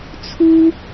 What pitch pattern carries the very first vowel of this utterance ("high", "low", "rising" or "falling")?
high